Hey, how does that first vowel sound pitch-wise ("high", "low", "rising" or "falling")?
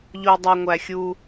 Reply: low